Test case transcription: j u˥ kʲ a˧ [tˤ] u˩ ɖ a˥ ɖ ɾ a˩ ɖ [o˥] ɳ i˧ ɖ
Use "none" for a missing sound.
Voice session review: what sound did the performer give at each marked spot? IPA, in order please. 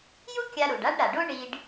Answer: ɾ, o˥

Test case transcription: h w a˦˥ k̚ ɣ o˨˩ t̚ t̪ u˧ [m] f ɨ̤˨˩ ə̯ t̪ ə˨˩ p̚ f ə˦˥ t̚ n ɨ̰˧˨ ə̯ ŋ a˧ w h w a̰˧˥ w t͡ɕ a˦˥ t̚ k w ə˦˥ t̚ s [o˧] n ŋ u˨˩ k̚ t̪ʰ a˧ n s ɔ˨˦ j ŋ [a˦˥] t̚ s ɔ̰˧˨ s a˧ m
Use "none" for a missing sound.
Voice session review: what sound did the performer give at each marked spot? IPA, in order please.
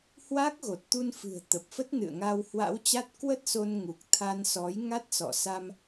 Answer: n, o˧, a˦˥

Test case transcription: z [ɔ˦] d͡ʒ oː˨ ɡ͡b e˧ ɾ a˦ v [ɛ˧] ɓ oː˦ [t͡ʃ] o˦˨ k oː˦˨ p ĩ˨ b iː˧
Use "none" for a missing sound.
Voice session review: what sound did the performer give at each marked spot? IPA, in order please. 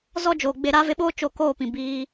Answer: ɔ˦, e˧, t͡ʃ

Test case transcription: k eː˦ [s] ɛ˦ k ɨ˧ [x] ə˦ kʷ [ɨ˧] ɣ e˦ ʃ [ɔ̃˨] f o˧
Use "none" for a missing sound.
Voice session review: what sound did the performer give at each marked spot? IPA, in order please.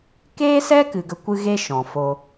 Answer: s, ɡ, ɨ˦, ɔ̃˨

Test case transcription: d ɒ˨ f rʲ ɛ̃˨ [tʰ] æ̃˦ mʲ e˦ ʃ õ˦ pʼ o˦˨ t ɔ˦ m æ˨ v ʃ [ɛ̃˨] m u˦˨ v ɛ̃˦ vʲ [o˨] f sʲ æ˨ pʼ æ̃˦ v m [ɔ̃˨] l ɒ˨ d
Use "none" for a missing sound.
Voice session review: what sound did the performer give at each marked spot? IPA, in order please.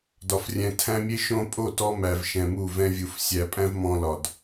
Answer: tʰ, ɛ̃˨, u˨, ɔ̃˨

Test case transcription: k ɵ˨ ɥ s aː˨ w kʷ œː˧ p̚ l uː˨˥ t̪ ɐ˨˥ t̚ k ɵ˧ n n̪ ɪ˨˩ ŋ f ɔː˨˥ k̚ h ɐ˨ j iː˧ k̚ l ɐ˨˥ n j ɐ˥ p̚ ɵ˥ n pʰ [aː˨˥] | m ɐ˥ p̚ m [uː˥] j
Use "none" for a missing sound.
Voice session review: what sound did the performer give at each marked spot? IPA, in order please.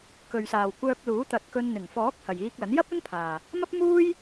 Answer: aː˨, uː˥

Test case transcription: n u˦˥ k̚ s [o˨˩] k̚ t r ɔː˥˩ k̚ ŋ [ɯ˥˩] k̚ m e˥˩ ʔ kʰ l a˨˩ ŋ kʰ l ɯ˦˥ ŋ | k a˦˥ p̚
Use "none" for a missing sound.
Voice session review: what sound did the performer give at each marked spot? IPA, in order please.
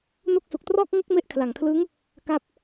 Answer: u˨˩, ɯ˥˩

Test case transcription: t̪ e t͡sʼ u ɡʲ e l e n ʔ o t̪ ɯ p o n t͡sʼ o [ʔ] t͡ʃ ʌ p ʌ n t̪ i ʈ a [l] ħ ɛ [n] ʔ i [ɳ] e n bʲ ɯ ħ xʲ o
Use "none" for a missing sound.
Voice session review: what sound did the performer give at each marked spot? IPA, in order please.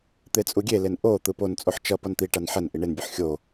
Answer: ħ, n, n, ɳ

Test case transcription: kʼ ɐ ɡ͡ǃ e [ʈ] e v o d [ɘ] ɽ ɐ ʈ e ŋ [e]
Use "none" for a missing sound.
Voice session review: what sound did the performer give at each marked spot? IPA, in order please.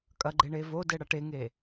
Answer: ɳ, ɘ, e

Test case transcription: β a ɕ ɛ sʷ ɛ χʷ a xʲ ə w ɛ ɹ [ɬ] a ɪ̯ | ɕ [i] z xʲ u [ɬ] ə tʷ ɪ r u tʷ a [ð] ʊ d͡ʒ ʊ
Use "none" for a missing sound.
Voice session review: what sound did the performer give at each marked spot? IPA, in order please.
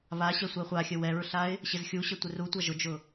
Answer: ɬ, ɪ, ɕ, ʒ

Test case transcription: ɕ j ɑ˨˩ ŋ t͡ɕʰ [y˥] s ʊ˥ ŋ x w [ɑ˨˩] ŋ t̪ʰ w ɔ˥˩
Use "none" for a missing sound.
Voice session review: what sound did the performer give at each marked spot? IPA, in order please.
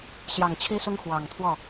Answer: i˥, ɑ˨˩

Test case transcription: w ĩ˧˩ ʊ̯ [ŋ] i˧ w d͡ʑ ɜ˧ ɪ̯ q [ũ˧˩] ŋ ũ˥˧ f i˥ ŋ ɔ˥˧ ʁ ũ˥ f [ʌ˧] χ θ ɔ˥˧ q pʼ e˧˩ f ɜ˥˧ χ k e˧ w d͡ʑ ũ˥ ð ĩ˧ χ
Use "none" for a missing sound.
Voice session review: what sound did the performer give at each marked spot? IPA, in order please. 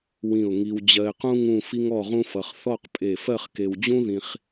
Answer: ŋ, ũ˥, ʌ˧

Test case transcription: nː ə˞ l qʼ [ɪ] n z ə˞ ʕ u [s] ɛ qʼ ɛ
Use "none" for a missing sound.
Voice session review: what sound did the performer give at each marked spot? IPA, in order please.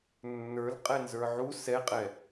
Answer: ɛ, s

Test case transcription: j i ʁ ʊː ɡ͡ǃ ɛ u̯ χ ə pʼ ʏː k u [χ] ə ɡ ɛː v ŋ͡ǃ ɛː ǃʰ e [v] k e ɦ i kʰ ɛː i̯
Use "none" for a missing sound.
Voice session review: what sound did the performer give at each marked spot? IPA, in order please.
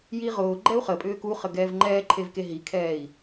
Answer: χ, v

